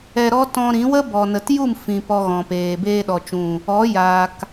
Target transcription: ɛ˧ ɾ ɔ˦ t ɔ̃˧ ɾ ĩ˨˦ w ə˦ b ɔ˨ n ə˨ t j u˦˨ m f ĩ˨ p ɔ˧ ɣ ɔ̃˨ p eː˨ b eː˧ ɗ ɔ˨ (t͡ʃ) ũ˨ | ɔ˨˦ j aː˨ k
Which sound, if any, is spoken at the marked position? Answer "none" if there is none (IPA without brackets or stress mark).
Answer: t͡ʃ